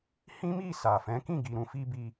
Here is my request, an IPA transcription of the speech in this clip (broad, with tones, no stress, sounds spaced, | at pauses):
h ĩ˦ m i˦˨ s a˨ f ɛ̃˨˦ k ĩ˦˨ ɡ i˨ ɾ ũ˨˦ f i˦ b i˧